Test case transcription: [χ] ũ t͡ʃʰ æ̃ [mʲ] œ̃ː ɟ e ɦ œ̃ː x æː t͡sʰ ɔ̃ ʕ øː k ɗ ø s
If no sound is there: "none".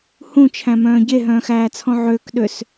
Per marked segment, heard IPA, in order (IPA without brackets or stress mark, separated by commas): h, m